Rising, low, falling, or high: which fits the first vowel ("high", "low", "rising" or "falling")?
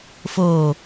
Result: low